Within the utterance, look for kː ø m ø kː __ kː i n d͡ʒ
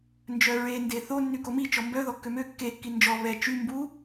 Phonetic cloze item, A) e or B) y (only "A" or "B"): A